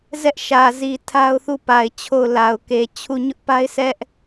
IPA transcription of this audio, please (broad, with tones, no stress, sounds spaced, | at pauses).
z ɛ˦ ʔ ʃ ä˨ z i˨ tʰ a˦ ʊ̯ θ u˦˨ p a˨ ɪ̯ t͡ɕʰ o˦˨ ʊ̯ l a˨ ʊ̯ k e˨ t͡ɕʰ u˦˨ ɲ ʊ˦ ʔ p a˦ ɪ̯ sʰ ɛ˦ ʔ